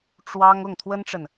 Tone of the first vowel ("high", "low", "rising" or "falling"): high